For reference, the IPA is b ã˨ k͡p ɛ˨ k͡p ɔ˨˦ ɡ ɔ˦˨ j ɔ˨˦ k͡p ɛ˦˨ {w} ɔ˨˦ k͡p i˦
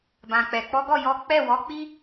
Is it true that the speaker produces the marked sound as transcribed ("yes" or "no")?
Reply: yes